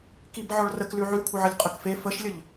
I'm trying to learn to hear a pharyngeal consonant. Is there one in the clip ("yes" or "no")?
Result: yes